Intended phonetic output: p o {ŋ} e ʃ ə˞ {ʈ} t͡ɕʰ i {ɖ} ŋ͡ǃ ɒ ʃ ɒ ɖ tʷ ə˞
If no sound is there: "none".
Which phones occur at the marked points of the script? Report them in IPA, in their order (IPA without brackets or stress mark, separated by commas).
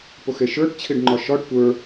x, ʈ, ɖ